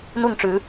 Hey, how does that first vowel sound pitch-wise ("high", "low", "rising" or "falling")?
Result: falling